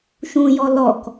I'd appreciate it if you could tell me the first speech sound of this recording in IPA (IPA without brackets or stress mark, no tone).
ʃ